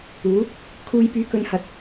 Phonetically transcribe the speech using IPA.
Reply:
uː˨˥ | kʰ uː˧ j p yː˧ k ɵ˧ n h ɐ˨ t̚

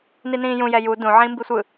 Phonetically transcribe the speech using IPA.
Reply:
n i n ĩː j ũ j ɛ j u d ũ ʕ ĩː m b i sʷ ɯ

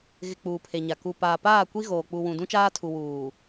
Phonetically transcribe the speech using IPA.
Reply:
ɣ ɪ˨ k͡p uː˨ pʰ e˨ ɲ a˨ k u˨ p aː˨ p aː˦˨ kʷ i˦ ɣ oː˨ k͡p u˨ w ũ˨ d ũ˦ t͡ʃ aː˦ tʰ u˨ w uː˨

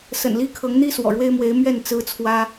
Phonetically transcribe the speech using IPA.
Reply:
s ə̰˨˩ n l i˥ kʰ ɤ˧˥ ŋ n̪ i˥ s w ɔ̰˨˩ ɻ w e˥ ɪ̯ m w e˧˥ ɪ̯ m ɥ ɛ˥˩ n t͡s ɹ̩˥ t͡sʰ w ä˥

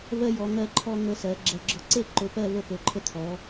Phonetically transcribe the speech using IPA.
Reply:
v ɜ˦ j ɔ˨˦ ŋ ɜ˦ ǃʰ ɔ˦ ŋ ə˦˨ s ɜ˨˦ ɡ͡ǁ ɐ˦˨ ɡ͡ǁ ɔ˦ ǀ e˦ ǃ ɵ˨˦ p ɜ˦˨ v ə˦˨ p ɵ˨˦ ǃʰ ə˦˨ t̪ʰ ɔ˨˦

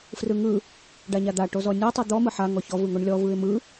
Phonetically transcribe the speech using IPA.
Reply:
f r ɯ ŋ ɯ | ɖ a ɲ a d̪ a ʈ o z ɔ nʲ ɔ tˤ ɯ d̪ ɔ m ɯ ħ a ŋ ɔ ç ɔ v ɯ ŋ o ɳ lʲ ɔ v ɯ ɪ̯ m ɯ

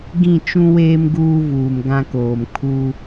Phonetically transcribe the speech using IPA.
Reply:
ɡ ĩ˦˨ t͡ʃ ũ˦ w eː˦ m ɡ uː˦ v uː˨ m ɡ ã˦ k oː˨ m kʰ u˦

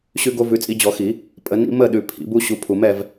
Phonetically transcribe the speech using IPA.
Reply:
ɕ ʉ˦ ɡ o˦ v ʉ˨˦ t͡sʼ i˨˦ d͡ʑ ɔ˨˩˦ x i˨˩˦ | pʼ ə˨˦ n ḭ˦ m ə˥˨ ɗ ʉ˨ pʰ ḭ˨˩˦ b u˦ ɕ u˨˦ pʰ u˨ m ɛ˥˨ v

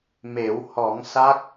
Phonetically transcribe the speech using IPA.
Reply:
m e˨˩˦ w h ɔ˨˩˦ ŋ s a˦˥ k̚

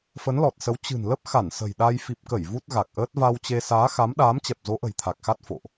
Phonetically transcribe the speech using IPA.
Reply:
f ə˨˦ n l ɔ˨˩ t̚ s ə˨˦ w t͡ɕ ɨ̤˨˩ n l ə˦˥ p̚ x a˧˩ n s ə̤˨˩ j ɗ a˧ j f i˨˩ p̚ k ə˧˩ j v u˦˥ t̚ ɣ a˨˩ k̚ ʔ əː˦˥ t̚ v a˧ w t͡ɕ e˧ s aː˨˦ x a˨˦ m ɗ aː˨˦ m t͡ɕ ɛ˨˩ p̚ z o˨˦ ʔ ə̤˨˩ j t̪ʰ a˨˩ k̚ x a˦˥ t̚ f o̰˧˨ ʔ

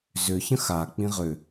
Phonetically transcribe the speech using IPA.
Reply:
z ʏ ç ə̃ x a k͡p ĩ ʁ ʏ

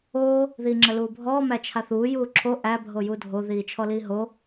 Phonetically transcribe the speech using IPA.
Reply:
oː | ð iː ŋ͡ǁ ə l uː bʱ ɔː m æ t͡ʃʰ a θ uː j uː ǁʰ o ʔ æ bʱ o j u dʱ o ð iː t͡ʃʰ ɔ l iː ɦ o

